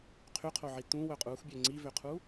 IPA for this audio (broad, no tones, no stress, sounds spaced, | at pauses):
qʰ y qʰ o ʕ i t ũ w œ qʼ u x bʲ ø ŋ͡ǀ i v ø qʰ u